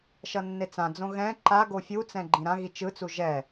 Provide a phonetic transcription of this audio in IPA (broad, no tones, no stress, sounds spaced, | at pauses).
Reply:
ʃ ʌ nː e t͡s ã d͡z õ ɣ ɛ̃ ǃ a ɡ o fʲ u t͡s ɛ̃ ɡ͡ǃ ĩ ɾ ã ɣ i t͡ʃ ɯ t͡s u ʒ ɛ